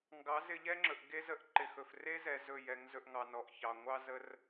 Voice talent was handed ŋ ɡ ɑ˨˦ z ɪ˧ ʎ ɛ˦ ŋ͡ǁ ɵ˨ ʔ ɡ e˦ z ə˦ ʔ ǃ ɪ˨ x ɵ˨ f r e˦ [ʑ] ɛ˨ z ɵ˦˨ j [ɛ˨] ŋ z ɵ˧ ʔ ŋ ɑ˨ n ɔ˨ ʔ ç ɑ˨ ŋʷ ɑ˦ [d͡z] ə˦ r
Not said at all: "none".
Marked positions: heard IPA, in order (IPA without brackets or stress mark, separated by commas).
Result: z, ɛ˨˦, z